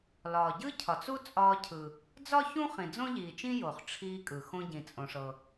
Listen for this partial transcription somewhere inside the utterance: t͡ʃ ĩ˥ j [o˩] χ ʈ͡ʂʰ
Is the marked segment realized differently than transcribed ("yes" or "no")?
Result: no